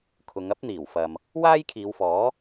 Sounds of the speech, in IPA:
kʰʊ˨˧ŋɐ˥p̚n̪iː˨˩wfɐ˨m | waː˥jkʰiː˨˧wfɔː˨˥

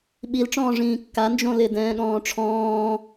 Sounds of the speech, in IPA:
ɓilʈ͡ʂɔ̃ːʐĩː kːa nd͡ʒõlɪdɛ̃ː ɠɔ̃ːʈ͡ʂʰɔ̃ː

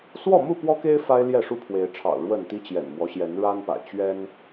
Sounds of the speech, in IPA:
swɔ˥˨mu˥˨pwɔ˦ke˦ɪ̯ fa˦ɪ̯ ljɛ˥˨ʂu˦pʰwe˨˦ɪ̯ʈ͡ʂʰɑ̰˨˩ʊ̯ ɻwə˥˨n t̪i˦t͡ɕjɛ̰˨˩nmwɔ˦ɕjɛ˨˦n ɻa˦npa̰˨˩ɪ̯ t͡ɕɥɛ˦n

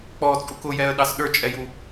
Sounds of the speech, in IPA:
k͡pɔt͡sʼuk ʊjɛə̯ɗɑs ɗə˞t͡ʃʼɛju

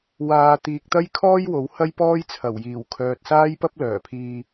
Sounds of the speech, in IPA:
waː˨˧t̪iː˨k̚t̪ɐ˥jkʰɔː˥j wo˨˥whɐ˥jpɔː˥j t͡sʰɐ˨˩wjiː˨˩wkʰœː˨t̚ saː˥jpɐ˥p̚ lœː˨˩pʰiː˧

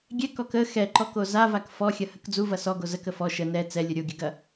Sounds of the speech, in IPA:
ɡʲɛkɔk ə xɛǃɔko zavak fɔxʲɐhək d͡zuvɐ sɔɡo zəkə fɔ ʃə nɛ t͡sɛlʲə ɾʲoɡʲəɡɐ

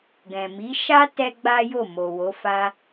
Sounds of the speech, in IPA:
ɡɛ̃˨ mi˨˦ ʃa˦ tɛ˦ɡ͡ba˦jo˦˨ mo˨wo˨˦fa˦

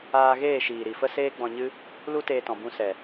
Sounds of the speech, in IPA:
aː˧ɣeː˦˨ʃiː˨ ɾi˨fə˦seː˦ ɡ͡bɔ̃˧ɲɨ˦ | lu˦teː˧tɔ̃˨ bũ˧sɛ˨

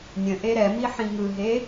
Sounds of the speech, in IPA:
nʲə̃ ʔeɾɛmi ħĩŋɯɦe

